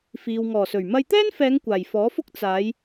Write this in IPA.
f iː˨ w ŋ ɔː˨˩ s ɵ˨˩ ɥ m ɐ˧ j t̪ ɛː˥ n f ɛː˨˧ ŋ kʷ aː˨˩ j f ɔː˨˥ f ʊ˥ k̚ t͡s aː˨˧ j

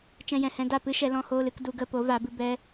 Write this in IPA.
t͡ʃ ɛ̃˧ j ɛ̃˨ h ɛ̃˧ d a˦˨ p ɨ˦ ʃ ɛ˧ l ɔ̃˦ h oː˦ l ɨ˧ k d u˧ ɡ ə˧ p o˨˦ v a˨˦ b ɨ˧ b ɛ˦

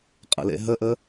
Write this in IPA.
qʼ ə̰ l ḛ ɦ ə ʔ ə

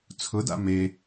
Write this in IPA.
t͡sʰ ʊ d a̰ m e

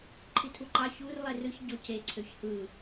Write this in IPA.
ǃʰ i tʰ u ǃ ɑ ç u r lˠ e r ɯ ç ɟ o c e ǀʰ ø ç h ɯ

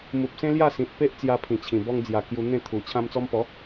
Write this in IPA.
m u˨ p̚ s ẽ˦ l j a˥˧ s ĩ˨ t̚ p e˦ ʔ t͡s j a˧ pʰ ĩ˨˩ t͡ɕʰ ĩ˨˩ b ɔ˧ ŋ d͡z j a˨˩ k j u˧ n̪ ẽ˥˧ t̪ʰ u˨˩ t͡ɕʰ ã˧ m t͡s ɔ˧ m p ɔ˨˦

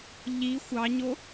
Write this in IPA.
ʎ i xʷ ɑ ɲ o

